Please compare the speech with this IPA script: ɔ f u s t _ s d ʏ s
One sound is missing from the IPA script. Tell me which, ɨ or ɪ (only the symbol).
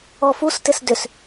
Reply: ɪ